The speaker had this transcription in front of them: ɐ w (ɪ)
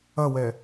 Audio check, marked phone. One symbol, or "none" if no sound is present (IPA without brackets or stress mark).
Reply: ɛ